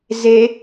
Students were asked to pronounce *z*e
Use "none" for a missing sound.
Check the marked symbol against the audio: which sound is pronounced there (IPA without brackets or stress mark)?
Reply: z